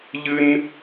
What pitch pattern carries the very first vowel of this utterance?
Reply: high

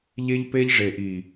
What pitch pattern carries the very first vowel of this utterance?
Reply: high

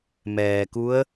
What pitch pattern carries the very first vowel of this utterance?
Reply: low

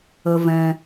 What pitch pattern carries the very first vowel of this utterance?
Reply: low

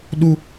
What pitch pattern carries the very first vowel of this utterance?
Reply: high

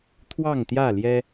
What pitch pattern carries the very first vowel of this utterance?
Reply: falling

